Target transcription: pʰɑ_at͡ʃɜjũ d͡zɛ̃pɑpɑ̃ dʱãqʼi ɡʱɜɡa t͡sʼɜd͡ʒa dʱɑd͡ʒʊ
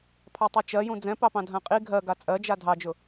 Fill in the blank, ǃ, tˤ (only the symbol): tˤ